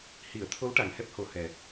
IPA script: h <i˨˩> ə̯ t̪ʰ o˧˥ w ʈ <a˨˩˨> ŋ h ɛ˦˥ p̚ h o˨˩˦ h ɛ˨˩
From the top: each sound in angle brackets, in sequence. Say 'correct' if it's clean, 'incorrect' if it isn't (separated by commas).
incorrect, incorrect